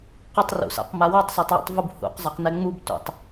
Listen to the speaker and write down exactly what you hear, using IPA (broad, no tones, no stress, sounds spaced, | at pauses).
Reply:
q ʏ tˤ r ṵ s a̰ q m a w a tˤ s a tˤ w ṵ tˤ v u b h ṵ q zˤ a q n ɛ ŋ͡m u b t ṵ tˤ